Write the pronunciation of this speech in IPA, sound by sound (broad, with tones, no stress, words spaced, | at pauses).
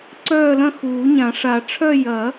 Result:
ǀœː˥˧lɐ̃˥˧xuː˨˩˦ɲã˨˩˦ ʂa˨˩˦ ʈ͡ʂʰœ˥˧ jɐ˨˩˦